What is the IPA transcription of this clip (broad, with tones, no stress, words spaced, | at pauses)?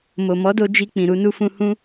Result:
mo˨mɔ˨˦do˧ d͡ʒi˧k͡pĩ˨ ɾu˧nu˧fũ˧ hũ˧